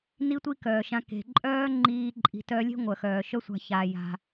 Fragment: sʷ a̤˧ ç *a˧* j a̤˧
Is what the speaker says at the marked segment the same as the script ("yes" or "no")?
yes